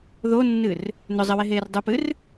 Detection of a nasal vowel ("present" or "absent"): absent